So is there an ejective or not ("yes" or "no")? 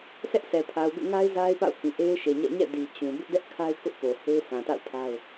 no